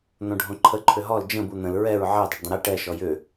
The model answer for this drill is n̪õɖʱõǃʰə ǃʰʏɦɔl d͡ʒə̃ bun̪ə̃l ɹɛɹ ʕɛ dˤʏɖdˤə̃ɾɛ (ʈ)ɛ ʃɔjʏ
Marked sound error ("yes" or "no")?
no